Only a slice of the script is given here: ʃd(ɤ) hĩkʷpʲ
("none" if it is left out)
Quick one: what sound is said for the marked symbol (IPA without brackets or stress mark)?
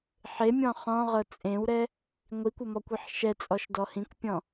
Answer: ɔ